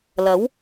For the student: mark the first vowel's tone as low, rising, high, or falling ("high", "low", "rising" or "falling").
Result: rising